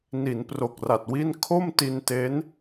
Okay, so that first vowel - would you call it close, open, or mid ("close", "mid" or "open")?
close